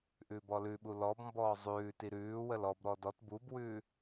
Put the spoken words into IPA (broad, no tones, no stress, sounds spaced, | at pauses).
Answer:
ʔ ʉː b ɔ l ʉ ɓ u l ɔ b m b ɔː zˤ ʉː t i ɾ ʉː w ə l ɔ b ɾ ɔ d ɔ t b u b w ʉː